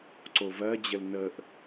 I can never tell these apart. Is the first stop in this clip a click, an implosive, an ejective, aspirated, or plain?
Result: click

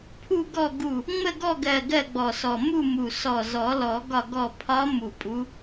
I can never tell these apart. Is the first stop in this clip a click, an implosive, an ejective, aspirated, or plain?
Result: aspirated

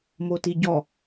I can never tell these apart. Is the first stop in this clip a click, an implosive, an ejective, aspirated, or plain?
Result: plain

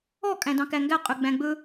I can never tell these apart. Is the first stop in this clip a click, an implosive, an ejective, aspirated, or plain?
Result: ejective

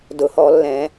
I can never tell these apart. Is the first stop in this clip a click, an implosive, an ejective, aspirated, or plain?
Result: plain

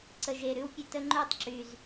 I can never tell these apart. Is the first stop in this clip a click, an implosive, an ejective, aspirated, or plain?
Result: click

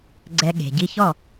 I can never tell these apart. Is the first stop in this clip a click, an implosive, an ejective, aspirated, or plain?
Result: click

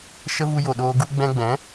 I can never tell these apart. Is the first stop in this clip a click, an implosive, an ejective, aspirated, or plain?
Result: implosive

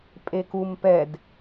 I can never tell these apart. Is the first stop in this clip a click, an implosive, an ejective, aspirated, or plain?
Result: ejective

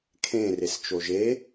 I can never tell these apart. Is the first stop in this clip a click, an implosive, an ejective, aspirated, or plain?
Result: aspirated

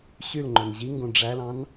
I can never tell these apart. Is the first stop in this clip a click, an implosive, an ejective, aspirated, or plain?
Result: click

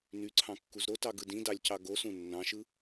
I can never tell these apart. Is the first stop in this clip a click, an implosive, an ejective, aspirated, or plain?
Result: click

